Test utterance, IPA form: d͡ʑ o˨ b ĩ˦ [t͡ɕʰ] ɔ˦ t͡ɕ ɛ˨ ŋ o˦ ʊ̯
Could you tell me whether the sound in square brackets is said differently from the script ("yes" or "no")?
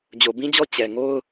yes